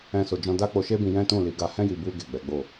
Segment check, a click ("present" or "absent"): absent